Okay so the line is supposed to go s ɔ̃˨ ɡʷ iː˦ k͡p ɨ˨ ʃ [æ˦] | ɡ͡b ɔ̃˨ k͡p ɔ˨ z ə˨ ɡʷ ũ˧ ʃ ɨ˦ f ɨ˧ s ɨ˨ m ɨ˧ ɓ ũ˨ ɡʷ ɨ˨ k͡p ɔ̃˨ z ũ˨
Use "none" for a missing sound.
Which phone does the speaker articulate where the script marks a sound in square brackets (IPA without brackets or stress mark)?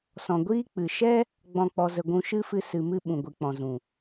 ɛ˦